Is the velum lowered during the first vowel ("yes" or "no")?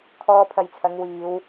no